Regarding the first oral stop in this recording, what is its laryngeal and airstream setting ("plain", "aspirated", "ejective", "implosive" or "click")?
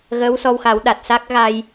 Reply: implosive